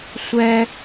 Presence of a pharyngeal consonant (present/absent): absent